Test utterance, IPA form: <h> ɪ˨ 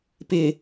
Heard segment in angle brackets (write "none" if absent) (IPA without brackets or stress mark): p